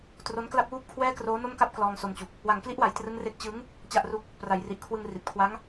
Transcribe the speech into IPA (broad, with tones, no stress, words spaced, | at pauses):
tro˦˥nkla˥˩p̚wuː˥˩p̚kʰwɛː˥˩ kroː˦˥no˥˩mka˥˩p̚ klɔː˧ŋso˧mt͡ɕu˨˩k̚ | wa˩˦ŋkli˦˥ʔwa˩˦j trɯ˦˥ŋre˥˩k̚ t͡ɕɯ˦˥ŋ | t͡ɕa˥˩ʔru˥˩k̚ | pra˩˦jri˨˩ʔkʰwɯ˧ŋ ri˨˩t̚kʰwa˦˥ŋ